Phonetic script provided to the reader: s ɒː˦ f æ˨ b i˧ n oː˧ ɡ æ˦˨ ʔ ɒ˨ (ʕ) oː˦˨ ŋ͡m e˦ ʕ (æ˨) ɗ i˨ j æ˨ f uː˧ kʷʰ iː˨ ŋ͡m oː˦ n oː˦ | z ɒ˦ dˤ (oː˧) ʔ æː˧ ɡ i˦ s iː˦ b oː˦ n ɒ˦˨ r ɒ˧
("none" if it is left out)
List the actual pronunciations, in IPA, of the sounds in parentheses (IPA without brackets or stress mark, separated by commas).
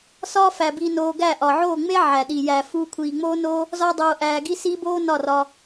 ʕ, æ˨, oː˧